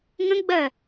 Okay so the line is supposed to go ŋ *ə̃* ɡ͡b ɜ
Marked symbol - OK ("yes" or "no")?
yes